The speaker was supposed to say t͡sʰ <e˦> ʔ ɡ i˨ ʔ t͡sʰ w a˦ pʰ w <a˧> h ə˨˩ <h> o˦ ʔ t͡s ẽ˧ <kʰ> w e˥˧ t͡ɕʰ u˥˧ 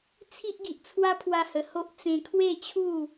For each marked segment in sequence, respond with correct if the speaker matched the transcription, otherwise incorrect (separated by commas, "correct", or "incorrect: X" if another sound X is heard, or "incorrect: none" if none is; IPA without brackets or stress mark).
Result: incorrect: i˦, correct, correct, correct